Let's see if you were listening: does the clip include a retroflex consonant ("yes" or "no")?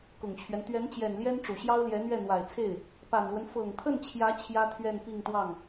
yes